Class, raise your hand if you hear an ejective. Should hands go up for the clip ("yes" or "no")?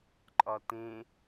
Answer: yes